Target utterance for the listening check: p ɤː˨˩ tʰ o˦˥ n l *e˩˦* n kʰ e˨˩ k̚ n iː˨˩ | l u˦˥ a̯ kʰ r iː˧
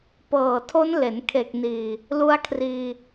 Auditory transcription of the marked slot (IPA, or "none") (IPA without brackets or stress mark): e˩˦